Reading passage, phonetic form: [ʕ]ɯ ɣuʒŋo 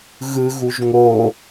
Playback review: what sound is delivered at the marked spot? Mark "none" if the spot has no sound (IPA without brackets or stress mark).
ɣ